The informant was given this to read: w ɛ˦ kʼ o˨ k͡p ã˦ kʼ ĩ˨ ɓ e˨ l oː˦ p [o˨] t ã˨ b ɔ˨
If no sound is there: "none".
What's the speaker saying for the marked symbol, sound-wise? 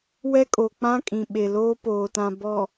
oː˨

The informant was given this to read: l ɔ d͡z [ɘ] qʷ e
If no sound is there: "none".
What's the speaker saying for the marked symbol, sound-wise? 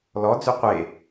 ʉ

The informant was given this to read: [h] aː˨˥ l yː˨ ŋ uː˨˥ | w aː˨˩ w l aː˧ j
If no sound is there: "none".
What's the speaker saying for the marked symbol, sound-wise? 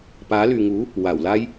p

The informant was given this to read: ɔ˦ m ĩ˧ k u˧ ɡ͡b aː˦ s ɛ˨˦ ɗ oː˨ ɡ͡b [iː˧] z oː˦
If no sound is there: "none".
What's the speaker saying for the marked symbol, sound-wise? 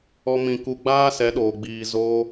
iː˧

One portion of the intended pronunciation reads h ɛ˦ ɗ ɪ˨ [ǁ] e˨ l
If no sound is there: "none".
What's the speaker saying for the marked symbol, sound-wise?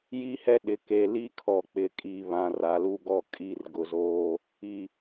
k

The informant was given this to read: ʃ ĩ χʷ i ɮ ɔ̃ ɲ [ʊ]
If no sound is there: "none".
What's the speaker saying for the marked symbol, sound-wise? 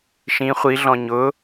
ʊ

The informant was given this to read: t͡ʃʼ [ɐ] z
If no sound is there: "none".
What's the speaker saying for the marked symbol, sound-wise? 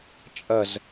ɐ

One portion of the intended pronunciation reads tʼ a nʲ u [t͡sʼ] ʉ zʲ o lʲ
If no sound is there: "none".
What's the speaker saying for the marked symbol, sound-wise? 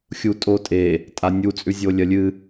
t͡sʼ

